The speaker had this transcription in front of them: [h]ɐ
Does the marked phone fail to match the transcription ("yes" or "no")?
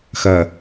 yes